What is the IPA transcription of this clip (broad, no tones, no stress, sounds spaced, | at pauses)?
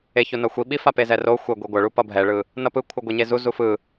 e ç o n ʌ xʷ i ɓ i f a p e z ɛ r o xʷ e ɡʷ i ɡʷ ʌ ɭ u p ʌ bʱ ɛ ɭ ɯ | n ʌ p ɯ kʷʰ ɯ ɡʷ e ɲ e z u z u f ɯ